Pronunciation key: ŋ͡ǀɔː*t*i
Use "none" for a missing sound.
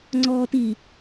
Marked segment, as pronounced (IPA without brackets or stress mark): t